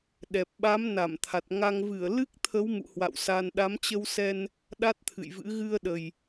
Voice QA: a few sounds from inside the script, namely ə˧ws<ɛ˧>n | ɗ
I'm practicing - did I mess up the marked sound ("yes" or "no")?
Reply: no